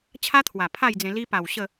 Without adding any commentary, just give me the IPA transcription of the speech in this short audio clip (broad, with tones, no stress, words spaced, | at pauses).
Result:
t͡ɕʰa˦t̪ʰwa˨˩ pʰa˥˧jd͡zẽ˧ li˧pa˨˩w ɕə˥˧